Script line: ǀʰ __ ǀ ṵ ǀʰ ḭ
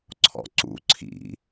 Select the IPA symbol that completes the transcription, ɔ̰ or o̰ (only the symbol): ɔ̰